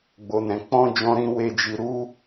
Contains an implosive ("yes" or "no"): no